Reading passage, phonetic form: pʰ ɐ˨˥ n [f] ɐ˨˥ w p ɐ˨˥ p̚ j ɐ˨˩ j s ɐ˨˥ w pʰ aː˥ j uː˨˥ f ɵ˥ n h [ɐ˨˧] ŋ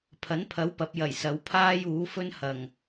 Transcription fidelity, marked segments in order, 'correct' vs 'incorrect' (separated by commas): incorrect, incorrect